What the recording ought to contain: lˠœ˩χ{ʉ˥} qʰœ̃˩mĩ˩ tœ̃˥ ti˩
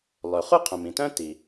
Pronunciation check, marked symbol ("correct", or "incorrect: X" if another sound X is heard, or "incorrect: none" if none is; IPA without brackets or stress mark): incorrect: u˥